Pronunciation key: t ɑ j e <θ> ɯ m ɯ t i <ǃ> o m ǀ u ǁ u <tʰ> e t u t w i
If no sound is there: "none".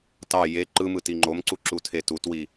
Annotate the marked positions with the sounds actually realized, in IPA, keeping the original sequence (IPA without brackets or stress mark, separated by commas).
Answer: ǃ, ŋ͡ǃ, tʰ